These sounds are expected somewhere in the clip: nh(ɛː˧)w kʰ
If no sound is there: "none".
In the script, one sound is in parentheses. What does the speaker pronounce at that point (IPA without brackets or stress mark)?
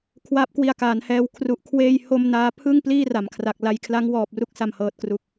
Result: ɛː˧